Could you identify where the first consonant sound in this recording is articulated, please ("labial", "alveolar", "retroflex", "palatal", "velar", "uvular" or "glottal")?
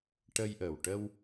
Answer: retroflex